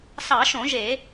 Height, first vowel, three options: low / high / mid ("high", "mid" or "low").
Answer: low